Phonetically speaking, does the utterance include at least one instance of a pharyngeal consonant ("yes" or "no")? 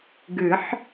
yes